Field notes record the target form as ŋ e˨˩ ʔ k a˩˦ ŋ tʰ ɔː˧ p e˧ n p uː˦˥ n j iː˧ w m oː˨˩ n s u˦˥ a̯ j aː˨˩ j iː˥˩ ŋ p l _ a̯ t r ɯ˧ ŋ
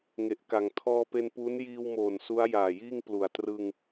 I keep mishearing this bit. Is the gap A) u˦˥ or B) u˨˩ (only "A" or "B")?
B